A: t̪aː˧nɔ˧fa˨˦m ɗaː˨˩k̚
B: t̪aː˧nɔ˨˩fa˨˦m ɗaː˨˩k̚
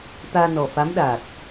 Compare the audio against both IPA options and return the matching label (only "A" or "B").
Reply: B